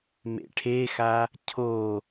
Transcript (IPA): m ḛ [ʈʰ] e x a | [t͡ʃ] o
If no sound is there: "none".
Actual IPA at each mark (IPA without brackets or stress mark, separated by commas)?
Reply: ʈʰ, cʰ